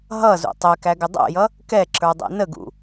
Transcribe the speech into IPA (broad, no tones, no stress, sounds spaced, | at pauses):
ɦ ʌ z ṵ tˤ ɛ k æ ɡ ɪ dˤ ɛ̰ j ʌ | k ɛ ǁ ə˞ dˤ ɛ̰ n ə ɡ ṵ